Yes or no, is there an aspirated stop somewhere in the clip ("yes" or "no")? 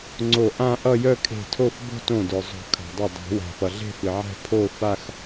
yes